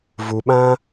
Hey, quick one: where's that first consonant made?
lips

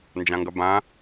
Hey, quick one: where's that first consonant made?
tongue tip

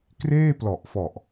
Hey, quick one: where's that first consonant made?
velum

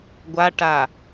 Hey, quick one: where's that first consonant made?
velum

